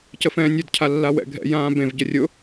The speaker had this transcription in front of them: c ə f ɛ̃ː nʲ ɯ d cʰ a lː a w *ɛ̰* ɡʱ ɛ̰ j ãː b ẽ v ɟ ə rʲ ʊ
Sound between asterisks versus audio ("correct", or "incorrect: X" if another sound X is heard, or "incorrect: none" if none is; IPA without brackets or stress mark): correct